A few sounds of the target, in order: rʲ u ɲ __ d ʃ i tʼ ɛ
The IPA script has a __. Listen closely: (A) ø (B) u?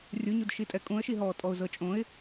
B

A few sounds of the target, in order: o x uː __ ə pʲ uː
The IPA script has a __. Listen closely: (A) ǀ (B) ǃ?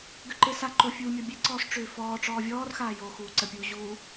A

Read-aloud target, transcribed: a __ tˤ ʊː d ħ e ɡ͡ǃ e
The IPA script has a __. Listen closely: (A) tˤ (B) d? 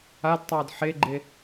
B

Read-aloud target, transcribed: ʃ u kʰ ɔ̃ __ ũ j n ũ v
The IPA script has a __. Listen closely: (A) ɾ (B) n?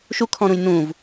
A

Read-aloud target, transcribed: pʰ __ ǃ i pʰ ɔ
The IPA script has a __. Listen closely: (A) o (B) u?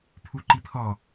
B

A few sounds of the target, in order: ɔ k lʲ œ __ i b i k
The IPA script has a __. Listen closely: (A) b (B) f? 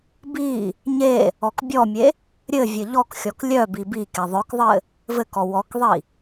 A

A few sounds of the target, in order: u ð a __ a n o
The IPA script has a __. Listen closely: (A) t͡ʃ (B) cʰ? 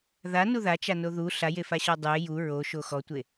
A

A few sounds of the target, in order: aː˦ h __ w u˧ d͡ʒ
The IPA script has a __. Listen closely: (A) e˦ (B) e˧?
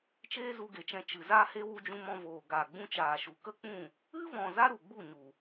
A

